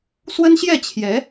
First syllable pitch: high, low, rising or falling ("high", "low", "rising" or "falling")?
high